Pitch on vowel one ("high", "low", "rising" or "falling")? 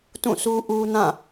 falling